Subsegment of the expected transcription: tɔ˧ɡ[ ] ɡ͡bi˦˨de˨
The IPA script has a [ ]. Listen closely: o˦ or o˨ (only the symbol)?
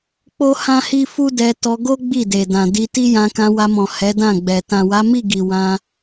o˦